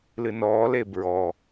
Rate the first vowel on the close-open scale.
close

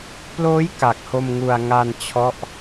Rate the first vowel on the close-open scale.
mid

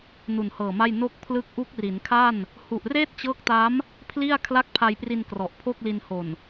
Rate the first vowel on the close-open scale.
close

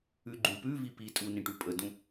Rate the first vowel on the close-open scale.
close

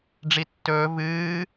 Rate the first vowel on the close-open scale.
close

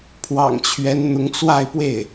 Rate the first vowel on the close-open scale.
open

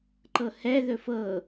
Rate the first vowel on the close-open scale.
mid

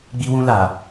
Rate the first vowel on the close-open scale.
close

